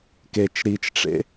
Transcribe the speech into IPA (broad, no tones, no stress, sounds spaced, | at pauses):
k e t͡ʃ ɾ i t͡ʃ ʈ͡ʂ ḛ